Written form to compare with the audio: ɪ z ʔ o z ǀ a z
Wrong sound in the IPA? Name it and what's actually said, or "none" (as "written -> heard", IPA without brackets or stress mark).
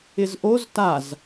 ǀ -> t